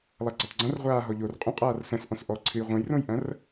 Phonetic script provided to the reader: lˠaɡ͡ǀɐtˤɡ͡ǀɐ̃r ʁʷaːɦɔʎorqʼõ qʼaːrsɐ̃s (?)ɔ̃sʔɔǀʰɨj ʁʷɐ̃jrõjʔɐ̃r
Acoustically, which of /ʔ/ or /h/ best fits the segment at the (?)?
ʔ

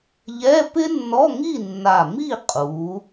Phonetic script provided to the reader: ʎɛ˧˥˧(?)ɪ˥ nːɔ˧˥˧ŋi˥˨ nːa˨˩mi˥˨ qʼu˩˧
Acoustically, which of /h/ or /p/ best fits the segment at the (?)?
p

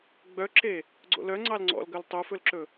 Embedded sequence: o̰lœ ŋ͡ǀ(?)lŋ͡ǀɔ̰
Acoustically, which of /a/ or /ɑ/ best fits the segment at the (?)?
ɑ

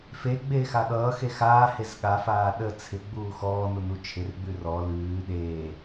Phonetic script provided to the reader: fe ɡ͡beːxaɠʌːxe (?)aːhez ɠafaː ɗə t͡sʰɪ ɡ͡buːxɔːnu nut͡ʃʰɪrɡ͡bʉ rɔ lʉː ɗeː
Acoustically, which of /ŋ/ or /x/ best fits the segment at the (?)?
x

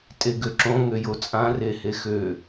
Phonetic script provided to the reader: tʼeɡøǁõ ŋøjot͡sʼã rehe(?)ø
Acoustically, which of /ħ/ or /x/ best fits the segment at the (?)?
x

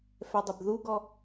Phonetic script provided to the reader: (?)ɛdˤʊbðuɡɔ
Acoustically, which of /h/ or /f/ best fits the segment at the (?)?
f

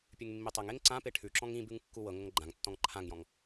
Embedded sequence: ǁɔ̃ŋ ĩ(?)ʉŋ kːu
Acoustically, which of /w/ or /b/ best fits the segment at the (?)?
b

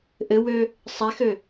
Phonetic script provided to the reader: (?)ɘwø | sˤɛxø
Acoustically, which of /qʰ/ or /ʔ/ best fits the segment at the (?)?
ʔ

